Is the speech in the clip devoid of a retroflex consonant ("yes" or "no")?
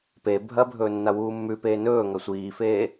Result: yes